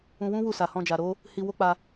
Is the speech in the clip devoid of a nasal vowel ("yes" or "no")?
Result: no